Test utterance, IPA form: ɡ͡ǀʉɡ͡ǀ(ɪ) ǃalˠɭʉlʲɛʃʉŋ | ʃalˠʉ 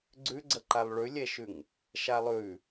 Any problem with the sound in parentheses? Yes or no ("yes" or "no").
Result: yes